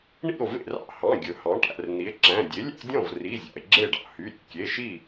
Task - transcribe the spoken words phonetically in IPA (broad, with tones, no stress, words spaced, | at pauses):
ɳḭ˥˩o̯vḛ˥˩rɑ̰˥˩ hɑ̃˩˧˩ ɡʲɵ˩hɑ̃˩˥ʈæ̰˩˧˩r n̪i˩˥e̯ǁæ̃˩˧˩ dʲe˩˥lʲæ̰˦dʲɔ̃˥˩v ri˩˧˩ zʲɑ̰˩e̯ɡ͡ǁe˥˩ɖɑ̰˥˩ hy˩˧˩ɾʲḛ˩ kʲe˩˧˩ʃi˥˩